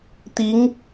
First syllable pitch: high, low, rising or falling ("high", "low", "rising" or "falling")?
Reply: rising